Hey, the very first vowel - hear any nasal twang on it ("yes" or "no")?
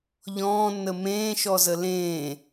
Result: yes